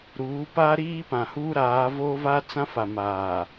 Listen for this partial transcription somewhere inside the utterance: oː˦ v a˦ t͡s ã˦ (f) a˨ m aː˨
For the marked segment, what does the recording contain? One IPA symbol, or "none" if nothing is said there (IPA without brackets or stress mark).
f